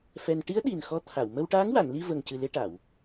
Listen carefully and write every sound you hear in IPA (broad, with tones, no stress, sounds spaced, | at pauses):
f ɛ˧ n ʈ i˧˥ ə̯ ɗ i˨˩ n x ɔ˧˥ t̪ʰ a˨˩˨ w m ə˧ w ʈ aː˧˥ ŋ w a˨˩˨ n l i˧ v ə˨˩ ŋ c ɨ˨˩ l e˧ ʈ a˨˩˨ w